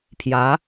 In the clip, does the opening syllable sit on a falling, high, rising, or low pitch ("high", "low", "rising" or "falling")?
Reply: rising